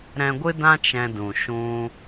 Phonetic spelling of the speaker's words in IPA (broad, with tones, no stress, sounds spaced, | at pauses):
ɾ ɛ̃˧ ɡʷ ɨ˦ d ã˦ t͡ʃ ɛ̃˧ d ũ˨ ʃ ũ˧